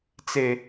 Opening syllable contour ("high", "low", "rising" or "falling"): low